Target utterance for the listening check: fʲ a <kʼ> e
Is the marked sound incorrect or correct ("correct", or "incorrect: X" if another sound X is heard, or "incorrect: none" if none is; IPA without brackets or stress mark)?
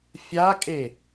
correct